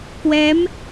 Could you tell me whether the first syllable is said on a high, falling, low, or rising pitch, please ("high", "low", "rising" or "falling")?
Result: rising